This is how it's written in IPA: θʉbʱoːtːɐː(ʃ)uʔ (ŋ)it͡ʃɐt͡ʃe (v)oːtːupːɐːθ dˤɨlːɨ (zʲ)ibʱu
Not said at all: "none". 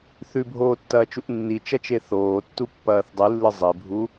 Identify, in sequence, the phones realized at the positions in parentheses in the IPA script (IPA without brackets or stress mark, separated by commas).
t͡ʃ, nː, θ, zˤ